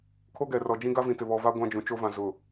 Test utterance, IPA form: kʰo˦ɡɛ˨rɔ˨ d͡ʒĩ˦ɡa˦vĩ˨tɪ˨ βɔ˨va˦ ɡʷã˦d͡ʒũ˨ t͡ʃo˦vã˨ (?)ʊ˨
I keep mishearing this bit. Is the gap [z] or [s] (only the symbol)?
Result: z